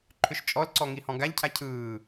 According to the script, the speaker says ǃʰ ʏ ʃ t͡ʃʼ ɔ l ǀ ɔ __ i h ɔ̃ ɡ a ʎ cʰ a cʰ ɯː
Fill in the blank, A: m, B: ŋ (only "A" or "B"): B